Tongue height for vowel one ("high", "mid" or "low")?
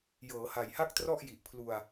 mid